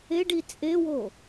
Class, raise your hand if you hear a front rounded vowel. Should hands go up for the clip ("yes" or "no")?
no